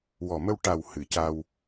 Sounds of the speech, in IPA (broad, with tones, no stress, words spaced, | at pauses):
wɔ˨˩mə˧w ʈa˨˩w hɨ˨˩˨ ca˧w